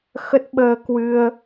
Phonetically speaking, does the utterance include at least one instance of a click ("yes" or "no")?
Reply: no